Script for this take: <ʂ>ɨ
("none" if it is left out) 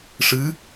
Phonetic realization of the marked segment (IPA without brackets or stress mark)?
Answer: ʂ